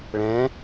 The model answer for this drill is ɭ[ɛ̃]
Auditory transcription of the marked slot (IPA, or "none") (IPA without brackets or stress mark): ɛ̃